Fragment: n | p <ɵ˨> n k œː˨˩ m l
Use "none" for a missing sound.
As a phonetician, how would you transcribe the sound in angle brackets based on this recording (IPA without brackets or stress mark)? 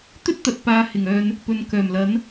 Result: ɵ˨